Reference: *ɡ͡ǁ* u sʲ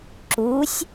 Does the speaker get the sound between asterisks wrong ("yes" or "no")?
yes